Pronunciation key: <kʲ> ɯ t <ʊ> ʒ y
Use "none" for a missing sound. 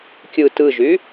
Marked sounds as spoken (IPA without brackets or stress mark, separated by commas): kʲ, ɯ